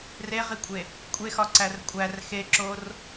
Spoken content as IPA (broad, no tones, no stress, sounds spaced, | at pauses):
r e ʁ i kʷʼ e | kʷʼ e x ɒ ǀ æ r kʷʼ æ r x e ǁ o r